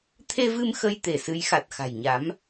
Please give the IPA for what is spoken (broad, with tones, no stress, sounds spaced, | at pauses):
t̪ʰ e˧ v ɨ˧ m x ə˧ j t̪ e˧˩ s ɨ˨˦ j x a˨˩ t̚ x a̤˨˩ j ɲ a˨˦ m